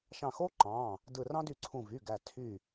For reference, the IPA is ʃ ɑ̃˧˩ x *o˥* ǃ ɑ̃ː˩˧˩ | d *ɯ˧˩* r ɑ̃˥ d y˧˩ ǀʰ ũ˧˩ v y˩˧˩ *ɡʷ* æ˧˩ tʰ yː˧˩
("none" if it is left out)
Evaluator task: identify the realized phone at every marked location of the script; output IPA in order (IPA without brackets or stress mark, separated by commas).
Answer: o˥, ɯ˧˩, ɡ